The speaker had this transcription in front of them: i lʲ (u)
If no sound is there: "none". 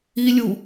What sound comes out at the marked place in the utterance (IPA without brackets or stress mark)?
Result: u